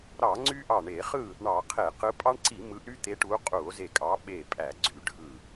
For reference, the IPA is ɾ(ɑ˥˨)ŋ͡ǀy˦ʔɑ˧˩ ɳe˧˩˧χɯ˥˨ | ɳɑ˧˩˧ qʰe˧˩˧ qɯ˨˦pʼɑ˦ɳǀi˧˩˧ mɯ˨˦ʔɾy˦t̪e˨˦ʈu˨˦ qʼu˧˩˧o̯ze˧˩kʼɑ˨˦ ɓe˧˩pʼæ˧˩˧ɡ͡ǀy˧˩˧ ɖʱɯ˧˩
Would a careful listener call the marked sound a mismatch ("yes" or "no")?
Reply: yes